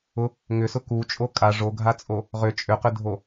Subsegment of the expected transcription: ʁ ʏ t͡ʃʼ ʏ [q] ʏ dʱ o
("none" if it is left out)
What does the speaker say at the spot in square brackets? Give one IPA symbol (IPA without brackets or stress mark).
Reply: q